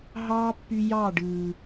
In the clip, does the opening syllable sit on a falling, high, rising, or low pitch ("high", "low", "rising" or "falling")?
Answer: high